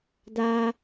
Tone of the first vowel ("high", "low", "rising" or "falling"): high